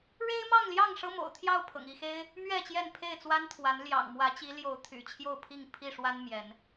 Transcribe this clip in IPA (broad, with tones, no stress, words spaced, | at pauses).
ɻe˦ɪ̯mɑ˥˨ŋljɑ˥˨ŋ ʂɤ˦mo̰˨˩ʊ̯ t̪ʰjɑ˥˨ʊ̯pʰɤ̰˨˩ŋ i˥˨xe˦ɪ̯ | mɥɛ˥˨t͡ɕjɛ˥˨n pʰe˥˨ɪ̯t͡swa˦nt̪ʰwa˨˦n ljɑ̰˨˩ŋmwä˨˦t͡ɕi˨˦ljo˨˦ʊ̯ t̪ʰy̰˨˩t͡ɕʰjo˥˨ʊ̯pʰi˥˨ŋ pʰi˥˨ʂwa˦n mjɛ˨˦n